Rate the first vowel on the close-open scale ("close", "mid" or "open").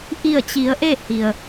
close